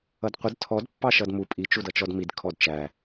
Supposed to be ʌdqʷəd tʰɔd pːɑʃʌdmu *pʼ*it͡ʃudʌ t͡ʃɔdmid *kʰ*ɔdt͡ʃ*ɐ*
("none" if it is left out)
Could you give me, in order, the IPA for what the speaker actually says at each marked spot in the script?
pʼ, kʰ, æ

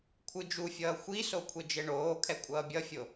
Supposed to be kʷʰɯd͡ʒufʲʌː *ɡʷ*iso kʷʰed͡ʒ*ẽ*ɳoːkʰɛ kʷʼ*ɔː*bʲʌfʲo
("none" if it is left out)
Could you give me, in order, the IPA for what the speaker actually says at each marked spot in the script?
xʷ, e, ʌː

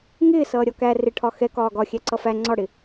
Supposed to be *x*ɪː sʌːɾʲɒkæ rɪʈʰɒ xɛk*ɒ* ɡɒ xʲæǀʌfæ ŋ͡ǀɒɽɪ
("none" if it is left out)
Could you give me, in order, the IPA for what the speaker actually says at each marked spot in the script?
ŋ, ɒː

